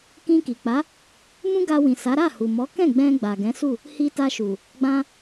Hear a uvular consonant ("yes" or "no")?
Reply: no